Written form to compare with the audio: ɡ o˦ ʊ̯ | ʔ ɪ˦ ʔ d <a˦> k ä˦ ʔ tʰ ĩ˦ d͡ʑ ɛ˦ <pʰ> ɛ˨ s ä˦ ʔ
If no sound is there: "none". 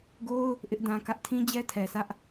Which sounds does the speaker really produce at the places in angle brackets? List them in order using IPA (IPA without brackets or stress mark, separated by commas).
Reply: ã˦, tʰ